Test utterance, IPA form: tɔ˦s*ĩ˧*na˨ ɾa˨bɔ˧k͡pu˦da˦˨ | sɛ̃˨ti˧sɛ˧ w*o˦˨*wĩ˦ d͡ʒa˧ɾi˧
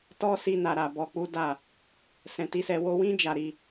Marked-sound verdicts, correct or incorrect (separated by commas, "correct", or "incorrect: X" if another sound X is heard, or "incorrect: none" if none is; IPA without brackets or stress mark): incorrect: i˧, incorrect: o˧